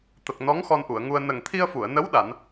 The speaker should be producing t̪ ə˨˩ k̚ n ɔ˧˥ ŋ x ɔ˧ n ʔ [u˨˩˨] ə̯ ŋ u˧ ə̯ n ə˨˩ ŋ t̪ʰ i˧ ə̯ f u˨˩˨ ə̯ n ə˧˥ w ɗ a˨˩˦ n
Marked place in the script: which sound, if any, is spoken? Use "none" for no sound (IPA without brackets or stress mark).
u˨˩˨